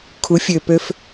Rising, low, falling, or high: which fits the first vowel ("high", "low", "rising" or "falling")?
rising